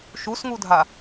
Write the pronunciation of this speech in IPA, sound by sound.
ʃusŋudʱa

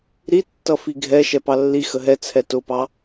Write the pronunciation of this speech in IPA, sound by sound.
ɾitːʌ fiɡʱɛ ʃɛpɑlːi xəɦɛ t͡sʰɛtʊpɑ

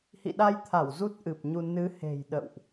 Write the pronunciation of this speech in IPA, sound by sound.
hḭ˧˨ɗa˧jt̪ʰa˧˩w zu˦˥t̚ʔɨ˨˩p̚ɲu˧ nɨ˨˦ he̤˨˩jɗə̰˧˨wʔ

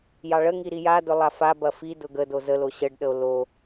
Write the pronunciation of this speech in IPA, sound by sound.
jɑɭəŋi ɾijadʊ lˠafabɐ fi dʊɡədo zəlo ɕəɖɗəo̯ lo

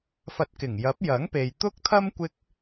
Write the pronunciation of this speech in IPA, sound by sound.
fɐ˧t̚ kɪ˨˩ŋjɐ˨˥p̚ jɐ˨˥ŋpe˨j t̪ʊ˥k̚t̪ʰɐ˥m kʷɪ˥k̚

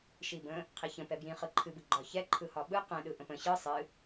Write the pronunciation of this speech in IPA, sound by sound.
ʃibə̃ | qʰiçə̃ pɛbjĩ χɯǃʰɨbɯ ɡ͡ǃɒçɛ ǃʰɯhɒɓɯ qɛ̃ɗɯ ʔə̃pə̃ ɕɯ sˤɨ

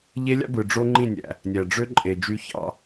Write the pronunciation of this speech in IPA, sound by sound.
ʎe˦lʲɑ̰˦bɯ˨ ɖ͡ʐo˦ŋ͡ǃĩ˦˨nʲæ̰˨ | nʲæ˨ɖ͡ʐø˦ǃʼe˨ d͡ʒy˦çɑ̰˦

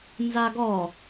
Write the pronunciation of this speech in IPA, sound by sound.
nzaɡɔ

